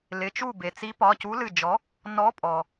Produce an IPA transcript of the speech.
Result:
l ɪ˩˧˩ t͡ʃ u˥˩ b e˩ t͡s i˨˥ p ɒ˩˧˩ c u˨˥ l ɨ˧˩ d͡ʒ ɔ˨˥ | n ɔ˨˥ pʼ ɔ˩

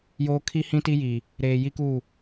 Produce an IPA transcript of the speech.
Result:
j oː˦ kʰ i˦ h ĩ˦ t i˦ j i˨ | ɾ eː˨ j i˦ k u˦˨

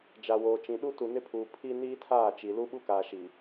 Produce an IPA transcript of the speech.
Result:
d͡ʒ a˨ w oː˨ t͡ʃ ĩ˨ ɗ u˦ t u˨ n ɪ˦ pʰ uː˨ pʰ i˦ n iː˦ tʰ aː˦˨ t͡ʃ i˨ l u˦ ɓ u˦ k aː˨ ʃ i˨

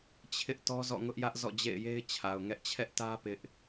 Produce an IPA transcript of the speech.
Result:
t͡ɕʰ ɪ˦ ʔ t ɔ˦ z ɔ̰˦˨ ŋ ʊ˦ ʔ j ä˦ ʔ z ɔ̰˦˨ d͡ʑ ḛ˦˨ ɪ̯ j e˦ ɪ̯ t͡ɕʰ a˨ ʊ̯ ŋ ɛ˦ ʔ t͡ɕʰ ɛ˦ ʔ t ä˦ p ɪ˦ ʔ

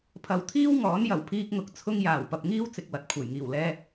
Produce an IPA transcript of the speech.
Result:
pʰ ɐ˨ w t̪ʰ iː˥ w ŋ ɔː˨˥ n j ɐ˨˩ w pʰ iː˧ k̚ ŋ ʊ˨˥ k̚ t͡sʰ ʊ˥ ŋ j aː˨˩ w p ɐ˨ p̚ ŋ iː˥ w t͡s ɪ˨ k̚ w ɐ˨ t̚ kʷʰ ɐ˨˩ j ŋ iː˨˩ w l ɛː˧

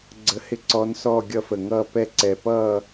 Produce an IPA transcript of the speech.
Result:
ɡ͡ǀ ə˦˥ h ɪ˥˧ ǀ ɔ˦˥ n s ɔ˥˧ ɡʲ ʌ˥˧ f ə˧˩ ŋ ʌː˥˧ p ɛ˥˧ ǀ ɛ˧˩ p ʌː˥˧

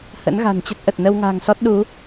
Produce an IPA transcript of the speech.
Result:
h ə̰˧˥ n ɣ a̤˨˩ n t͡ɕ ə˦˥ t̚ ʔ ə˨˩ t̚ n ə˧ w ŋ a̤ː˨˩ ŋ s ɔ˦˥ t̚ ɗ u˨˦

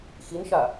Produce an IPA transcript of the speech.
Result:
x i n ʃ a

